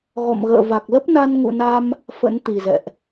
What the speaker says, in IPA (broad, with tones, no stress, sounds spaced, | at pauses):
ɣ ɔ̰˧˨ m ɣ ə̰ː˧˨ v a˨˩ k̚ l ə˦˥ p̚ n a˧ n ŋ ṵ˧˨ n a˧ m | f ə̰˧˥ n t̪ i˨˩ z ɛ̰˧˨ ʔ